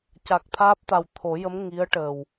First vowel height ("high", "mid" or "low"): low